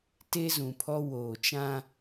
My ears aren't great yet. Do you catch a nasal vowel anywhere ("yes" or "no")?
yes